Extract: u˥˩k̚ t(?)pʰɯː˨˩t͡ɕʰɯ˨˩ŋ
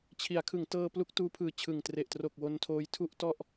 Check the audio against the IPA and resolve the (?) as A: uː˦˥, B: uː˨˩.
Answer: A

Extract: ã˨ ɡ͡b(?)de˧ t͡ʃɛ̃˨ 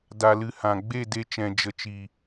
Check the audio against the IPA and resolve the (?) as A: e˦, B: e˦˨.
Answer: B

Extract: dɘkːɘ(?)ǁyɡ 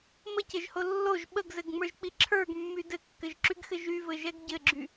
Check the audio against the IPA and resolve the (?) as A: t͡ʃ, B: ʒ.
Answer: B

